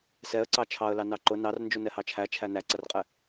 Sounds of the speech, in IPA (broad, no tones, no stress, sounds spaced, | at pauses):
s ɛ ə̯ ǀ ɑ t͡ʃʰ ɑ ə̯ l ɑ n ɑ ǃ ʊ n ɑ r n d͡ʒ u n ɛ h ɑ t͡ʃʰ æ t͡ʃʰ æ n æ ǀ ʌ r qʼ ɛ